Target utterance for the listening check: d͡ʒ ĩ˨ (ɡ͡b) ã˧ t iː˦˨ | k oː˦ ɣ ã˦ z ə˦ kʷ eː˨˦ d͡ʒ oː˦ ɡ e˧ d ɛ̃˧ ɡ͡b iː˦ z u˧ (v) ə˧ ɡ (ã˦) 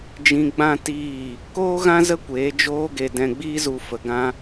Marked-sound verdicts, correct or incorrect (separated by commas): correct, incorrect, correct